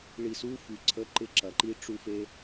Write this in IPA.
ɭ i˨ s u˦ f y˨ ǀʰ ə˨˦ ǃ ɪ˧ ǁ ɐ˨ ǃ i˧ ʈ͡ʂ u˧ f e˧

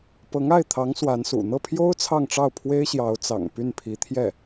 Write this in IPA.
p ɤ˧˥ ŋ a˥˩ ɪ̯ t̪ʰ ɑ˧˥ ŋ s w a˧˥ n s ṵ˨˩ n̪ ɤ˥˩ pʰ j o˥ ʊ̯ t͡sʰ ɑ˥˧ ŋ ʈ͡ʂ ɑ˥˩ ʊ̯ pʰ w e˥ ɪ̯ ɕ j ɑ˧˥ ʊ̯ t͡s ɑ̰˨˩ ŋ p y˥˩ n pʰ i˧˥ t̪ʰ j ɛ˥˩

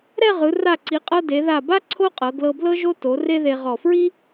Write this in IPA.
ɾ ɛ˥˧ ʁ ɯ˩˧ r a˧˩ ǀ i˩˧ qʼ ɤ˧ d e˩˧ ð a˧˩ b a˥ ǀʰ o˥ qʼ ɤ˩˧ ɡ l ɤ˧ b l ɤ˥ ʒ o˥ t o˩˧ r e˥ ð e˧ ʁ ɔ˧˩ f ɹ i˥

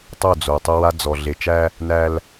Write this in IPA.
tˤ o˦˨ d͡z o˨ tˤ ə˦ w a˦ d͡z ɔ˨ ɮ e˨ t͡ʃ æ˦ | n æ˦ l

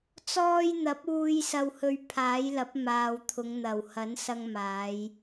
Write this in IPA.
t͡s ɔː˧ j n̪ ɐ˨˥ p̚ uː˧ j s ɐ˧ w h ɵ˧ ɥ pʰ aː˨˥ j l ɐ˨˥ p̚ m aː˨ w t̪ʰ ʊ˨˧ ŋ n̪ ɐ˨˩ w h ɐ˨˥ n s ɐ˧ ŋ m aː˨˧ j

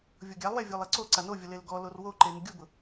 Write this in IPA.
vʲ o ɡʲ a lˠ w ɛ vʲ o lˠ e ǀ o ǀ a n o vʲ ʊ l e l ɡ ɔ l o r w o ǃ e n ɪ ɡʲ u b ʊ

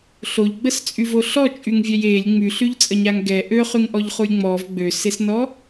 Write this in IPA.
ɬ o ʎ ɡ͡b ə s t͡sʼ y v o ɬ ɔ t͡ʃʼ y ŋ vʲ ɛ j e lʲ ŋ͡m y ɬ y ʎ t͡sʼ ə ɲ a ŋ ɡ ɛ ʔ ø χ y ŋ ʔ ɔ ʎ χ u lʲ ŋ͡m ɔ v ɡ͡b ø s e s n ɔ

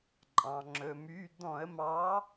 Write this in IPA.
ǃʼ ɑ̃˩ ŋ͡ǁ ɵ˩ m y˩˧˩ d̪ ɔ̃˧˩˧ ə̯ m ɑ˨˥

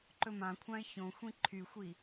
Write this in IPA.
ǃ ɵ m ã kʷʰ ã ɪ̯ ç õ xʷ ĩ ǃʰ y xʷ i

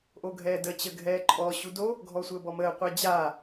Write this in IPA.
ʔ o ɡʱ ɛː d ə t͡ɕ ə ɡʱ ɛː ǃʼ ɔ ɕ u d o | ɡʱ ɔ sʷ əː b ɔ m əː qʷ ɛ d͡ʑ aː

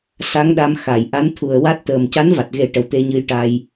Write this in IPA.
s a˧˥ ŋ ɗ a˧ m x a˨˩˨ j ʔ a˧˥ n t̪ʰ u˨˩ ə̯ w a˦˥ t̚ t̪ əː˨˩ m c a˧˥ n v a˨˩ t̚ ɣ e˨˩˦ ʈ ə˨˩ w t̪ e˧ ɲ ɨ˧ j ʈ a˧ j

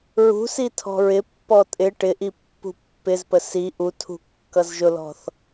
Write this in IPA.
ɹ ṳ s i tʰ ɔ̤ ɹ ɪ pː ɔ tʼ ɪ ʈ ɪ ʔ i pː ṳ pː ɪ z p ə s i ʔ u tʰ ṳ kː ʌ z ʒ ʊ l ɔ̤ θ

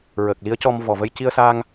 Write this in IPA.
ɹ əː˨˩ k̚ l i˧˥ ə̯ c ɔ˧ m v ɔ˨˩ v ə˧ j c i˧ ə̯ s aː˧ ŋ

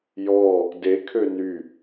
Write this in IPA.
j ɔ | d e kʰ ø n y

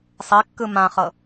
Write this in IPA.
sˤ e kː ɯ m ã χ ɤ

